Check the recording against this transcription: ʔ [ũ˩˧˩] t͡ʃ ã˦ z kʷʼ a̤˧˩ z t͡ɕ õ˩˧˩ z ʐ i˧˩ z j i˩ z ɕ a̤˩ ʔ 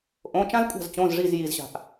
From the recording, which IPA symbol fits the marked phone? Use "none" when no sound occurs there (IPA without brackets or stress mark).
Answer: õ˩˧˩